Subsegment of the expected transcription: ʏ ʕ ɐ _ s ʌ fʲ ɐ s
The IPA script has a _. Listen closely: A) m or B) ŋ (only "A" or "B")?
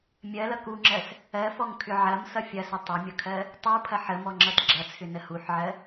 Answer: A